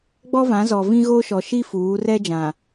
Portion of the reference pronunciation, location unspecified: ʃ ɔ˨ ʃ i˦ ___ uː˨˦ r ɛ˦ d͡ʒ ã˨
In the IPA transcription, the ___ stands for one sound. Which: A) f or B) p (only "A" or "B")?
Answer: A